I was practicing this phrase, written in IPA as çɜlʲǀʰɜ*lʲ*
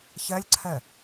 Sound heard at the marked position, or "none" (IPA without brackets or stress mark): none